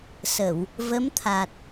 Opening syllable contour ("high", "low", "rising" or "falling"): low